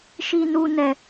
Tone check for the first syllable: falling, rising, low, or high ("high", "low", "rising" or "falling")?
high